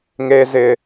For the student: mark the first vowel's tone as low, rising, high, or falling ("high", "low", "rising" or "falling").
low